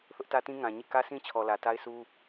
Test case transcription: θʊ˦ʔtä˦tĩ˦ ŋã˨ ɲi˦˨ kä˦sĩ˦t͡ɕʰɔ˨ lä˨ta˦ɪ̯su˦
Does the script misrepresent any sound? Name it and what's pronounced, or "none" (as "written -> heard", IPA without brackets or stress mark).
none